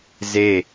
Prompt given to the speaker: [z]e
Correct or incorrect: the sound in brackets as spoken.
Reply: correct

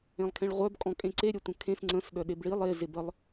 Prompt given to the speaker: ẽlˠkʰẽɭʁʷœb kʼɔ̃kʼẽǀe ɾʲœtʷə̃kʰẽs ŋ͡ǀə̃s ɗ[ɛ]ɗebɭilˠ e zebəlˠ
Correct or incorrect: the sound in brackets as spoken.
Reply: incorrect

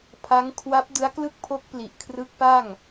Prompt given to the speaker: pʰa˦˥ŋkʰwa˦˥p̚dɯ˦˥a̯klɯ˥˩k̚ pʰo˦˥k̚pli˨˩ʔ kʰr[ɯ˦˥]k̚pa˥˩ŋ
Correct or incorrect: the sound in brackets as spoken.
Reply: correct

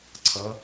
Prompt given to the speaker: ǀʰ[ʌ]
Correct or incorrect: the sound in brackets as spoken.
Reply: correct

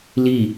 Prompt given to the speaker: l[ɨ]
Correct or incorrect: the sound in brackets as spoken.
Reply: incorrect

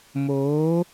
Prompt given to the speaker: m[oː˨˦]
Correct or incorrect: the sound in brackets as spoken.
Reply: correct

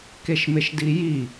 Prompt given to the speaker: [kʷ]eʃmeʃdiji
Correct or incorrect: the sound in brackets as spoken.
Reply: incorrect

